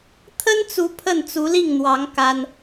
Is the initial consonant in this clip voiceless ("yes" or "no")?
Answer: yes